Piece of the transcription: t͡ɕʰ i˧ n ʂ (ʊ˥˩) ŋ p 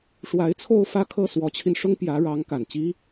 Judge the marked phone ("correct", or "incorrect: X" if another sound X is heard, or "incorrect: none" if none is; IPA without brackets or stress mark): incorrect: ʊ˥